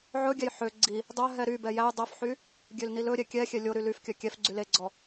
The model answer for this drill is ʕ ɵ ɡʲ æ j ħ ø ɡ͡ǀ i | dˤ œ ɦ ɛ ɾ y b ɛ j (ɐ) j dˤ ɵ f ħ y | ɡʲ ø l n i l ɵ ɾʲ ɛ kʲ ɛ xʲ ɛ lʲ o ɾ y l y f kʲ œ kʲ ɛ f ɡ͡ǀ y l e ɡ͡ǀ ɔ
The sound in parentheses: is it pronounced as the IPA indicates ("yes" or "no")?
no